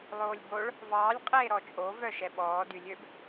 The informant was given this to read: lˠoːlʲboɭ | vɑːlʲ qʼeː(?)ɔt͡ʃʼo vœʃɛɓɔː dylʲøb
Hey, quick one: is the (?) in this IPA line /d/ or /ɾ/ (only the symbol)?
ɾ